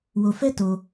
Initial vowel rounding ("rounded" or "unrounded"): rounded